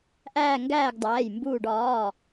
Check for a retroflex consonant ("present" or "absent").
present